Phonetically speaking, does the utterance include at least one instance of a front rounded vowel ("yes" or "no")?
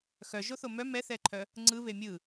yes